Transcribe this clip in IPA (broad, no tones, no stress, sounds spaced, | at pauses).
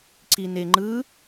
ǀ i n e ŋ͡ǃ ɯ